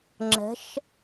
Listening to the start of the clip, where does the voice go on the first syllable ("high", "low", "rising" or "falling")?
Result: rising